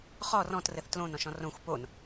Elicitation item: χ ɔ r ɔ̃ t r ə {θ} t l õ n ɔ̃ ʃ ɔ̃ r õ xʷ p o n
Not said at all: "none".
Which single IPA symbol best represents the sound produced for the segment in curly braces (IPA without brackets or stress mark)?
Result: θ